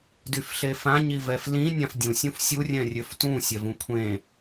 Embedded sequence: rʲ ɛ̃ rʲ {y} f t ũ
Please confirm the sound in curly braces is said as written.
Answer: no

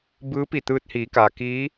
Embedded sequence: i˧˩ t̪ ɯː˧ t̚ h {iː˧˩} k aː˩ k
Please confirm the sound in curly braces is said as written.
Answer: no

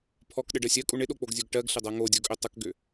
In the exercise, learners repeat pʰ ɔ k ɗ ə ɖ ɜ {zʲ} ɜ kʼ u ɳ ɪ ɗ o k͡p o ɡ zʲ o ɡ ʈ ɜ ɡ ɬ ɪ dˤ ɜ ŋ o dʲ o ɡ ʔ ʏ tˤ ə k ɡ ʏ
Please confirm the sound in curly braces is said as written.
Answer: no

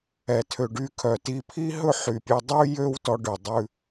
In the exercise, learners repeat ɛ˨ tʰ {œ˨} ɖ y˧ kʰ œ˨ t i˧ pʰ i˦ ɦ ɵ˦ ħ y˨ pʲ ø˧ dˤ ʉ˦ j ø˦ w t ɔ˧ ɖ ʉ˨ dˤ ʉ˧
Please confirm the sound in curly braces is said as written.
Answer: no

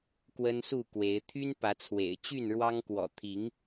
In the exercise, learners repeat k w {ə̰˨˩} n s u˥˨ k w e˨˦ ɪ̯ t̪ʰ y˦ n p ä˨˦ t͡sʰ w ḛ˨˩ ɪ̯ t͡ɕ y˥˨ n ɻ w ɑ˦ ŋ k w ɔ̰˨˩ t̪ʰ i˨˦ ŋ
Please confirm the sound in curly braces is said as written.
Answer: no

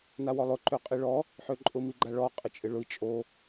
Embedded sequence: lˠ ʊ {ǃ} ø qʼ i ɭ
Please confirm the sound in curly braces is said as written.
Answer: yes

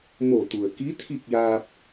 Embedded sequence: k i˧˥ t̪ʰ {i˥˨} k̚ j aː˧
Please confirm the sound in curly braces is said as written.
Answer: yes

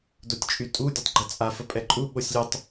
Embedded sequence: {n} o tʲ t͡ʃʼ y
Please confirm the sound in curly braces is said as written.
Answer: no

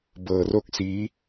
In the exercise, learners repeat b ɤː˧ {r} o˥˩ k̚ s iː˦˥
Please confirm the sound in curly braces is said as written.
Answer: yes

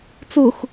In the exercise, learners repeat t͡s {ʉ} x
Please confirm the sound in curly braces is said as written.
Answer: no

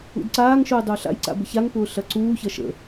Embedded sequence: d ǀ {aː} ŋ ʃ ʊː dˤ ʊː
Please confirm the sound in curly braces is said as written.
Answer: yes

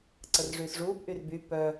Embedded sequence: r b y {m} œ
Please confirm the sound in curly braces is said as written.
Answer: no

